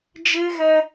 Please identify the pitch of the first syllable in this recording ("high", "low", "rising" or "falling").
high